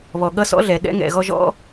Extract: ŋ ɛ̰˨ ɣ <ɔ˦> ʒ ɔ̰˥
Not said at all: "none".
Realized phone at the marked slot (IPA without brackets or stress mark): ɔ˦